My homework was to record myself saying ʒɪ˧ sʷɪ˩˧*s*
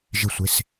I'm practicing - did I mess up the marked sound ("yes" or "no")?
no